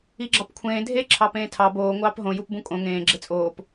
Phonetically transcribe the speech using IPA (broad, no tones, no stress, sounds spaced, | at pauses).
i ɡ͡ǁ ɑ p kʷʰ ẽː dʱ e ǁʰ ɑ p ẽː tʰ ɑ b oː ŋʷ ɑː p ɦ õ j u p b ũ kʼ õ ŋ ẽː ɡ͡ǁ e t͡sʼ oː p